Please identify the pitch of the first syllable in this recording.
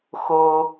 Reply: high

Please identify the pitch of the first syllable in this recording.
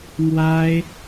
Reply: high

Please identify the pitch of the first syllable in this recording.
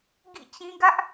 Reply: falling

